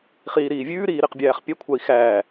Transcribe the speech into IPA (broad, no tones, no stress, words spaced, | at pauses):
χiːɾiːvʲʉːɾiː ɾiqbʲæːχpʲɛkʷʰai̯ xæː